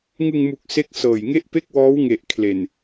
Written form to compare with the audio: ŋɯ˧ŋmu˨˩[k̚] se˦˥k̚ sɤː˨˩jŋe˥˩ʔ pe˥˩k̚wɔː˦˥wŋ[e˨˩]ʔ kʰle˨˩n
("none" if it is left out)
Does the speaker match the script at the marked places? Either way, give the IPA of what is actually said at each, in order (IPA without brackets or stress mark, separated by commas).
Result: k̚, e˨˩